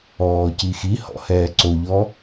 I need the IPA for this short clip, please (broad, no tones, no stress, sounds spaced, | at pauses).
ɔː c i x i h ɔ̰ h ɛː ǀ o ʎ ɔ